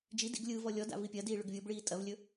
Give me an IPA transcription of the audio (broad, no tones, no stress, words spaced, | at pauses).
d͡ʒi dḭɡlʲɯːvɔ lʲɔda̰ vipʲɐdiː ɭɵɡvʲobɭiː tʼɐvlʲɵ